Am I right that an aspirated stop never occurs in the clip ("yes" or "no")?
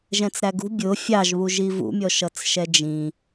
yes